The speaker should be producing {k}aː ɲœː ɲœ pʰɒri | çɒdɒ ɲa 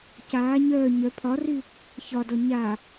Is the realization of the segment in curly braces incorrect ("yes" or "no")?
yes